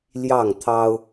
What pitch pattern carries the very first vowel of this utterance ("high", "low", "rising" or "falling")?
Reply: falling